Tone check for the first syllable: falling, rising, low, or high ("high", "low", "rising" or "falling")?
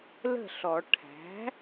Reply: falling